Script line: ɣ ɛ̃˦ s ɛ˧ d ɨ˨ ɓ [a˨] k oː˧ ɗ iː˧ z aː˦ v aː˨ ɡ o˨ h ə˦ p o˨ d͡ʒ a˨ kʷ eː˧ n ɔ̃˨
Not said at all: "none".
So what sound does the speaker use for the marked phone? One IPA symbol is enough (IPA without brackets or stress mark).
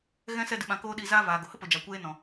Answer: ã˨